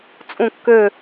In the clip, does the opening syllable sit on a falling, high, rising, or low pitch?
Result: falling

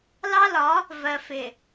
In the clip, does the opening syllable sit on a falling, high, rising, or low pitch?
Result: high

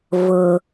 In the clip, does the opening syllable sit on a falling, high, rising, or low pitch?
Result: low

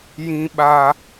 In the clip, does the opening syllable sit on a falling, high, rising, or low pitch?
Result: high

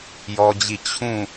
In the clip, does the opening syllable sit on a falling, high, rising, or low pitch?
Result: high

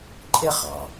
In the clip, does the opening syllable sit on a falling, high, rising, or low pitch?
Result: high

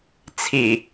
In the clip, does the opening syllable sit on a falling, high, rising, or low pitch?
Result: low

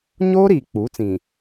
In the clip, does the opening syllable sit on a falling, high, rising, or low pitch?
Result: high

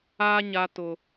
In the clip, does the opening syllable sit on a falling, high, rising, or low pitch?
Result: high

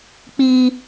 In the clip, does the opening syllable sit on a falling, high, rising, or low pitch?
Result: high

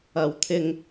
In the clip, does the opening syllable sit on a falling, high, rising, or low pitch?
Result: low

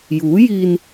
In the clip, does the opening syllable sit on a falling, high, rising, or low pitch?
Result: rising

